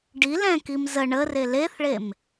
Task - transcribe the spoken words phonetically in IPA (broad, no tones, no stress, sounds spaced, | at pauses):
ɖ i l ɛ̃ k i m z ə ɳ ə r e l e θ ɭ e m